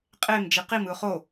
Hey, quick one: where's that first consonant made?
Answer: uvula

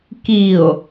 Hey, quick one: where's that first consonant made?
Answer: velum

